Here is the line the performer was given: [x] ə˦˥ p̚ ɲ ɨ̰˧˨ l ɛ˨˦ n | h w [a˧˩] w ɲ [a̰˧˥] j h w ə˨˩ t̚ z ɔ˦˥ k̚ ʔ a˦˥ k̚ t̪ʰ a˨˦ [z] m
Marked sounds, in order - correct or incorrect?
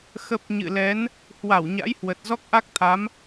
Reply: correct, correct, correct, incorrect: none

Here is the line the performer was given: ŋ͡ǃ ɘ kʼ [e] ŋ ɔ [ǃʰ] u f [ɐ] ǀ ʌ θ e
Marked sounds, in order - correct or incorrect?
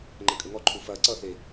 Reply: incorrect: ɘ, correct, correct

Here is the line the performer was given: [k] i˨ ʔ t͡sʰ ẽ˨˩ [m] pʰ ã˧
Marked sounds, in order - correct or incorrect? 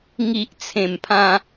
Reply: incorrect: ŋ, correct

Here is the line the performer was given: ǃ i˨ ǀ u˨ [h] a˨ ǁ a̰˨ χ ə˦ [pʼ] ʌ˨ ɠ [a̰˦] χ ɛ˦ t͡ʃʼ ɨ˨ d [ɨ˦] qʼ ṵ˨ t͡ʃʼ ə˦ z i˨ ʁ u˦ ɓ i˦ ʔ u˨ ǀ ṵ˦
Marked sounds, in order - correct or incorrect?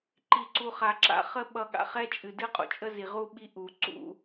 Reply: incorrect: χ, incorrect: ɓ, incorrect: a̰˨, correct

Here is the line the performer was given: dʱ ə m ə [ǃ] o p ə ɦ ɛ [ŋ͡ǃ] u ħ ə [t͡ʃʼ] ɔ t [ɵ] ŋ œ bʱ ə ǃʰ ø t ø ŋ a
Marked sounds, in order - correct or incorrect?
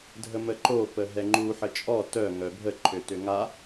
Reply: correct, correct, correct, incorrect: œ

